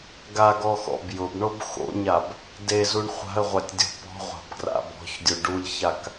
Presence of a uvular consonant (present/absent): present